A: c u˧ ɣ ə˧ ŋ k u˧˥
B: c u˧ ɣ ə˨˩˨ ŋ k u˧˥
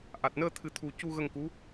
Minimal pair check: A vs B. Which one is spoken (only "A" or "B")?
A